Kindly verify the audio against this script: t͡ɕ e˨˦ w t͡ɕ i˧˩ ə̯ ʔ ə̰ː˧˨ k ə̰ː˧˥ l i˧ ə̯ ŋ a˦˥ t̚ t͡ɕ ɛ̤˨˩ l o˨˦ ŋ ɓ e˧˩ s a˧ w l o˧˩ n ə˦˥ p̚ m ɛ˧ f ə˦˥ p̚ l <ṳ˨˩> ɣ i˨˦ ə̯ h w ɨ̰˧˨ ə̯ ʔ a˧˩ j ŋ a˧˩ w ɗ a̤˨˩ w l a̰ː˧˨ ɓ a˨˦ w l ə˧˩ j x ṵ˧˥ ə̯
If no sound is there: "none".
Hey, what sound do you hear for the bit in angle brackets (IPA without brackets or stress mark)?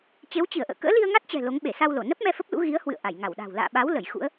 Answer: ṵ˧˥